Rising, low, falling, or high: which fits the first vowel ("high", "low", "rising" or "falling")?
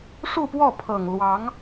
falling